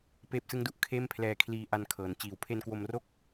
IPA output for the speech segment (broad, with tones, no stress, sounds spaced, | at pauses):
p eː˦˥ p̚ s ɯ˦˥ ŋ d u˨˩ ʔ kʰ eː˥˩ m pʰ l ɛː˧ kʰ l iː˧ ʔ a˧ n kʰ ɤː˩˦ n t͡ɕ iː˩˦ w pʰ e˧ n k w o˧ m r o˥˩ k̚